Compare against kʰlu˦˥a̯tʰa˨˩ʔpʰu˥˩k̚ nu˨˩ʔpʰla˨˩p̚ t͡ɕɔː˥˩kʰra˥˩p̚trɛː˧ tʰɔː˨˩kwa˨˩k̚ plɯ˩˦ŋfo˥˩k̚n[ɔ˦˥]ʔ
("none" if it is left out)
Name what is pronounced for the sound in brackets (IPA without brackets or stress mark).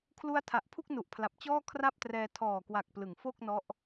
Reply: ɔ˦˥